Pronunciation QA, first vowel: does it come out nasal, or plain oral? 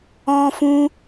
nasal